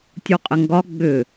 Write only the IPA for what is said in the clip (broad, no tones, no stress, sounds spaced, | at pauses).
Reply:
tʲ u qʼ ɪ ŋ ɡ ɒ ɡ͡b ʏ